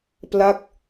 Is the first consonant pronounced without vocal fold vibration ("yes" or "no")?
yes